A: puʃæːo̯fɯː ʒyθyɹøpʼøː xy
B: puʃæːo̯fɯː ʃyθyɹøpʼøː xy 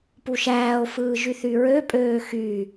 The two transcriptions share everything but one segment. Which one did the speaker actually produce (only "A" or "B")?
A